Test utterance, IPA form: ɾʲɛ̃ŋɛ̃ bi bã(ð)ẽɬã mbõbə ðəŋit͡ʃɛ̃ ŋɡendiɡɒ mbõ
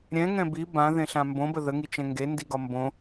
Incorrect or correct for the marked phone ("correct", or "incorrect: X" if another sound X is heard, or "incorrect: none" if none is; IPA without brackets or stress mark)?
correct